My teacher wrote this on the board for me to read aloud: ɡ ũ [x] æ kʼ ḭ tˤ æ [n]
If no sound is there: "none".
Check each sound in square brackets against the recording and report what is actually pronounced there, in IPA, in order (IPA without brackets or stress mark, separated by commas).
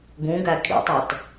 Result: ɡ, t